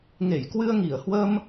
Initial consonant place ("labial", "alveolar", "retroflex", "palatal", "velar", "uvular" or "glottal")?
velar